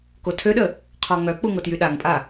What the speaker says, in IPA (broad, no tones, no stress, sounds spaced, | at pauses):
k o tʰ ø ɗ ə | qʰ ɔ ŋ œ k͡p u ŋ o t j y ɗ a ŋ pʼ a